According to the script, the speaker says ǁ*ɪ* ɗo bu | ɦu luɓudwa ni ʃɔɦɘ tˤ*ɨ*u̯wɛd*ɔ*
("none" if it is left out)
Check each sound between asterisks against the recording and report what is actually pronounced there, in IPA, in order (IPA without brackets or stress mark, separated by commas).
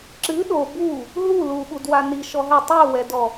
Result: ɨ, ɨ, ɔ